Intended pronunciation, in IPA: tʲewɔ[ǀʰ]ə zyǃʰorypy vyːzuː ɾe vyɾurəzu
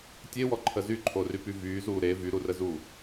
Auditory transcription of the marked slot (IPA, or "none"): ǃʰ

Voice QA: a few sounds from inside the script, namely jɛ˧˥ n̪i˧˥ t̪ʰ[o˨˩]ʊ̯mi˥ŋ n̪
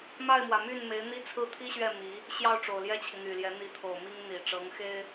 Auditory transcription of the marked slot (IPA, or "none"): o˨˩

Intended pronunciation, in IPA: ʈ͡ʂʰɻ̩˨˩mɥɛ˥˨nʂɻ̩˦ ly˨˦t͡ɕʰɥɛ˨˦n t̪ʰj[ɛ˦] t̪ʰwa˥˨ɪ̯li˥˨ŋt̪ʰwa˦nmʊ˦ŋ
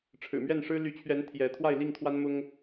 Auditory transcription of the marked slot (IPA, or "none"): ɛ˨˦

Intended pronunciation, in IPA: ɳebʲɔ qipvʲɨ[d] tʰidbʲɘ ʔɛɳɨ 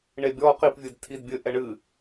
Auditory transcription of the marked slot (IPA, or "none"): d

